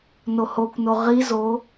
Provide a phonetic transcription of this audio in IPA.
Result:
n o h o kʷ n o ʁ i z o

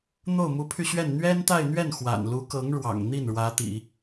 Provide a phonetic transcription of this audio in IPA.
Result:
n̪ o˥˩ ʊ̯ m u˧˥ pʰ y˧ ɕ ɥ ɛ˥˩ n n̪ ɥ ɛ˥ n t̪ a˥˧ ɪ̯ n̪ ɥ ɛ˥˩ n x w a̰˨˩ n l u˧˥ k ɤ˧˥ ŋ ɻ w ɑ̰˨˩ ŋ n̪ i˥˩ n ɻ w ä˧˥ t̪ ḭ˨˩˦

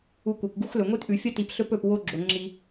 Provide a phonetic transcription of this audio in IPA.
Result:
u˨ kʷ a˩ kʷ ɡ u˦ x l ɵ˩ ŋʷ i˦ t ʔ ʉ˩ fʲ ɐ˥ t i˨ p ɬ ɵ˥ p ɵ˨ p w o˦ ɡ͡ǁ o˩ ŋ͡ǁ i˨

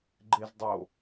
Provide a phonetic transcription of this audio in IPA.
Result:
ɡ͡ǃ e z dˤ o

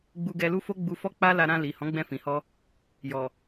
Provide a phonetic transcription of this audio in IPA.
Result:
ɡ͡b u˧ ɡ ɛ˧ l u˦ f o˦ ɡ͡b u˧ f ɔ˦ k͡p a˦ l a˦ ɾ ã˧ l i˨ h ɔ̃˨˦ ɡ͡b ɛ̃˧ f ĩ˨ h ɔ˧ | j ɔ˨

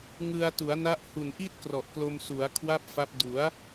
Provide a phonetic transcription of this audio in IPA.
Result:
ŋ ɯ˧ a̯ t u˩˦ a̯ n a˦˥ ʔ h u˨˩ n ʔ i˥˩ t̚ k r ɔ˨˩ ʔ k l o˧ m s u˩˦ a̯ kʰ w a˥˩ p̚ f a˦˥ p̚ d u˩˦ a̯

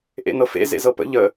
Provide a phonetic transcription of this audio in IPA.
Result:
ʔ ḛ n ɤ f ḛ z ḛ z ɤ p ə̰ ʎ ə

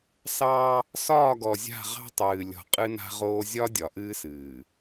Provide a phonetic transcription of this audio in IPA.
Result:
s ɑ˦ | s ɒː˦˨ ɡ ɔ˨ zʲ a̤˦˨ ʁ ɑ̤˦ tˤ ɨː˨ lʲ ɔ̤˨ qʼ ɨ˦ n a̤˦ ʁ oː˦ zʲ ɒ˦ dʲ ɒ˨ ʔ ɨː˦ s ɨː˨

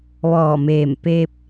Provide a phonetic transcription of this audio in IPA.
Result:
ʋ ɔː˧˩ m eː˧˩ m p e˧ p̚

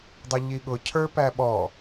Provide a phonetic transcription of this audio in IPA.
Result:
dˤ ʌ ʎ i ɠ ʊ cʰ ə˞ p æ ɓ ɔ

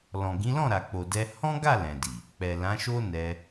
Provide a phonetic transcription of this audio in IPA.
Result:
l ɔ̃˨ ɡ ĩ˨˦ l ɔ̃˦˨ ɾ a˨ k͡p o˨ d ɛ˧ h ɔ̃˦ ɡ a˦˨ l ɛ̃˨ d i˨ | k͡p ɛ˨ l ã˨˦ ʃ o˦ n ɛ˧

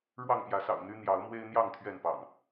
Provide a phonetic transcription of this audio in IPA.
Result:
ɻ w ɑ˥˨ ŋ p j ä˨˦ s ɑ̰˨˩ ʊ̯ n̪ y˦ n̪ j ɑ˨˦ ʊ̯ m w e˦ ɪ̯ n̪ j ɑ˥˨ ŋ t̪ʰ ɥ ɛ˥˨ n p ɑ̰˨˩ ŋ

